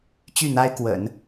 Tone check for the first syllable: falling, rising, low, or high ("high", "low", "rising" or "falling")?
falling